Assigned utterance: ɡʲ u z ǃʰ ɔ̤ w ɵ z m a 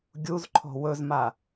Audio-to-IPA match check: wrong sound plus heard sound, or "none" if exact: none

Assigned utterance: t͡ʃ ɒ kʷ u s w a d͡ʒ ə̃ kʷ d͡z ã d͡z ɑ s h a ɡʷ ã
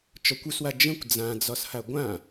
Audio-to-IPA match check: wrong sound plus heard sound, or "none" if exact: ɑ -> ɒ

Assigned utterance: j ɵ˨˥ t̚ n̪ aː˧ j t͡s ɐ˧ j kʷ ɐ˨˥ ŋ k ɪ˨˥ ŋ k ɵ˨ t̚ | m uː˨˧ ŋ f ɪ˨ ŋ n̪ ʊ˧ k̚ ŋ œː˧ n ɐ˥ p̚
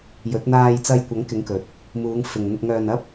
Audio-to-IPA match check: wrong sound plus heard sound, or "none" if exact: none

